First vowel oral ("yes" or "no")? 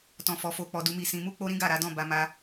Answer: no